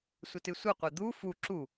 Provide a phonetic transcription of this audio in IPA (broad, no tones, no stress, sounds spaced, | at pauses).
sʷ ə t ɨ sʷ ɨ qʷ ɘ d̪ u f u ǁ u